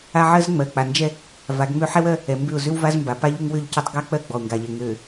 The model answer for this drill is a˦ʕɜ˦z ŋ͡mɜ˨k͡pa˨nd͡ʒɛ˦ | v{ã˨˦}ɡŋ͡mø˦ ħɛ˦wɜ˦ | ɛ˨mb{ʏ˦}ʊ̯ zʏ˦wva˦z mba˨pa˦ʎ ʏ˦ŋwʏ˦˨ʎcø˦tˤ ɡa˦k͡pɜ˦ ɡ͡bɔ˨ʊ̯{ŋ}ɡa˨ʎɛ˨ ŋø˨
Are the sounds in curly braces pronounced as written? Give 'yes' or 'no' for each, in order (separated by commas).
no, no, yes